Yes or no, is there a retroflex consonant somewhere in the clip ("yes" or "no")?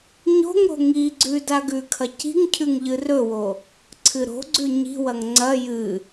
no